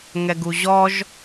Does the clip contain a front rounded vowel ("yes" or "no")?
no